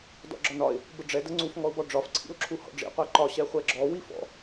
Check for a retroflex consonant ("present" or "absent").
present